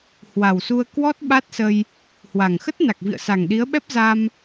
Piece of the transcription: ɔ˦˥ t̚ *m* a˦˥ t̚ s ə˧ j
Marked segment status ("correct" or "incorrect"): incorrect